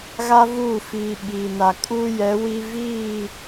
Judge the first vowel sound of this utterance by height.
low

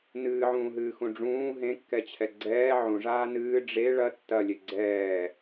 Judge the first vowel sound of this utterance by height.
high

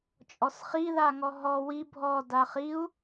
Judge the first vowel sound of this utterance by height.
mid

